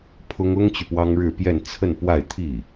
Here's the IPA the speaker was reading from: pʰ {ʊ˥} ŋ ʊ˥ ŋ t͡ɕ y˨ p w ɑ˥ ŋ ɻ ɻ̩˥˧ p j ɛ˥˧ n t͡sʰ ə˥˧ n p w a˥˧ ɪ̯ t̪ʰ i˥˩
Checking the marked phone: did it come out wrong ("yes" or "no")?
no